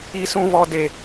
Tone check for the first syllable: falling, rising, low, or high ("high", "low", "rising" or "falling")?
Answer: high